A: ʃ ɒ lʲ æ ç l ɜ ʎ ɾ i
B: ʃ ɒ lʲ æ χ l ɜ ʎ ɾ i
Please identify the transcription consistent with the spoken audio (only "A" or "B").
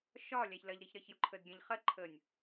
A